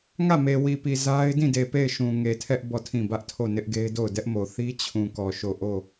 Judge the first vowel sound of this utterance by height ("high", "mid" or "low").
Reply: low